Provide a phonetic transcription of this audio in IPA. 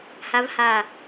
ha˦˥v ha˦˨

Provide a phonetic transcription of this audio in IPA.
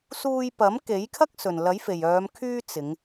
suː˧jpɐ˨˥m ke˨˥jkʰɐ˥k̚ sɵ˨˩nlɐ˨˥jfe˨˩jœː˨˧m kʰyː˥t͡sɪ˨˧ŋ

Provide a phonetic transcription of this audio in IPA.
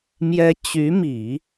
mjɛ˧˥ t͡ɕy˧˥mi˨˩˦

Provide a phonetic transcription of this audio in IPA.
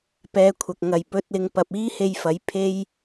pɛː˨˧kʷʰɐ˨k̚ ŋɐ˨jpɵ˧t̚lɪ˧ŋpɐ˧p̚ iː˥he˧jfɐ˨˥j pʰe˥j

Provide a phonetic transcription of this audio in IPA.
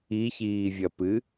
içiːvʲɐpɨ

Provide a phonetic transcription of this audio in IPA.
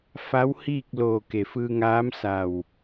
fa˧˥whiː˥˨k̚loː˧˩ ke˩fɯː˧ŋaː˧˥m sa˧˩w

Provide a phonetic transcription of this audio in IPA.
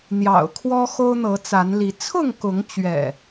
n̪jɑ̰˨˩ʊ̯kʰwɔ˦ xo˦ʊ̯n̪ɤ˨˦t͡sa˨˦n li˨˦ t͡sʰʊ˥˨ŋkʊ˨˦ŋt͡ɕɥɛ̰˨˩

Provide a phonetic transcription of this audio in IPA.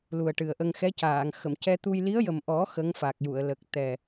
lu˨˩ə̯ʈɨ˨˩ə̯ʔə˧ŋ xɛ˧˥caː˨˩˨ŋ xə˨˩˨mcɛ˧t̪u˧j li˧˥ə̯jə˨˩mʔɔ˨˩˦ xə˧˥ŋ fa˨˩k̚ju˨˩˨ə̯lə˨˩k̚ t̪ɛ˨˩

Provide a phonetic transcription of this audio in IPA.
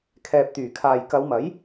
kʰɛː˨p̚t̪yː˨˩kʰaː˨j kɐ˨˧wmɐ˨˥j

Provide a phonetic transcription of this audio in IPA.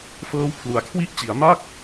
fɤː˦˥wpʰlu˩˦a̯kʰwi˥˩ʔ t͡ɕi˩˦a̯ma˥˩k̚

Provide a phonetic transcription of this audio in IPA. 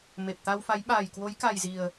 me˨˩p̚t̪a˧wfa˨˦j ɓaː˨˩jkwo˨˦jka˨˩jzi˨˩ə̯

